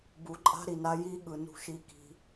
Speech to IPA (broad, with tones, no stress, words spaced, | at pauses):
bu˨ǃʼa̤˧ ɾi˨na˧ ji˦ɠɯ˧ nṳ˧ʃi˧ki̤˧